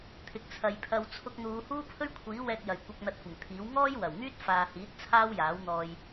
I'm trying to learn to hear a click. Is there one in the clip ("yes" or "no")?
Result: no